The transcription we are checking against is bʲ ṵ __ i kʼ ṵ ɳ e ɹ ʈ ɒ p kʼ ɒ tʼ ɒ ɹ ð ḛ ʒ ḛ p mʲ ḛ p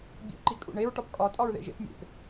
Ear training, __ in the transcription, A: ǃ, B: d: A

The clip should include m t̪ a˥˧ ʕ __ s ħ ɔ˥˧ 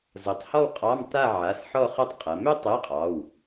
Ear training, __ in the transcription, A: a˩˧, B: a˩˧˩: B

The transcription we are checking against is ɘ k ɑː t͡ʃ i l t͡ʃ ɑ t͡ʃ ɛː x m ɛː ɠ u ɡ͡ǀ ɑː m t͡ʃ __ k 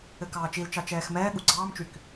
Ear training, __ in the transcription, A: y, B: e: A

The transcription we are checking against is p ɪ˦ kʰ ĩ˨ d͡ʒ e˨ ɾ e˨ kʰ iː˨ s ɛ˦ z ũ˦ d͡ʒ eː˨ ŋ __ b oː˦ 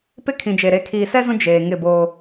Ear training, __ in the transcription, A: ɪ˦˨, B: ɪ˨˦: A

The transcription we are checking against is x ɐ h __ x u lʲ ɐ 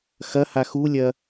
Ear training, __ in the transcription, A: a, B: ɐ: A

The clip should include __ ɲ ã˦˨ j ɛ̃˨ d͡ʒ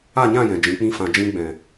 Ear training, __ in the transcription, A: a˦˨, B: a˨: A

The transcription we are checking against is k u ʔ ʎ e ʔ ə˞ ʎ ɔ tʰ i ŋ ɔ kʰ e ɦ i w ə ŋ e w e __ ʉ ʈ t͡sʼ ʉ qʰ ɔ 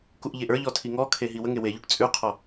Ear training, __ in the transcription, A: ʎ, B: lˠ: A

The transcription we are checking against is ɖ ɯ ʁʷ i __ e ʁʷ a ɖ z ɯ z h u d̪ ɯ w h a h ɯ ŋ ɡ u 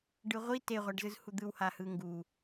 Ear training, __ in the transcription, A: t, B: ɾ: A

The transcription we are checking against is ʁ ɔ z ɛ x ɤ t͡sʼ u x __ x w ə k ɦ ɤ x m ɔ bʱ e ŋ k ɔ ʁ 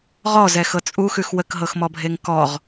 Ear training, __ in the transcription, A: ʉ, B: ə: A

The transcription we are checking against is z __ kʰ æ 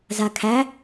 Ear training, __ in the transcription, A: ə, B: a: B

